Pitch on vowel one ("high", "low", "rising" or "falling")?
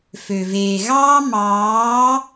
low